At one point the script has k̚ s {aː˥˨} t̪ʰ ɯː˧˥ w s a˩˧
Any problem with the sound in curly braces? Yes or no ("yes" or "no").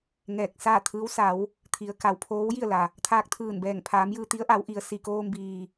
no